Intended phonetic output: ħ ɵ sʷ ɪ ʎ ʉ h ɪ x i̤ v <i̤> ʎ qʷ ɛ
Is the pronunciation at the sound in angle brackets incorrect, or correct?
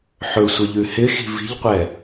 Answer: correct